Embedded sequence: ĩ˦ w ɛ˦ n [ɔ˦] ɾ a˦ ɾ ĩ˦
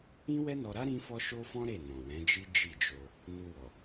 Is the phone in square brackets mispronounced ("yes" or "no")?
yes